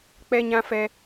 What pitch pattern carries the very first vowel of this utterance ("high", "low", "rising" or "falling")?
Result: high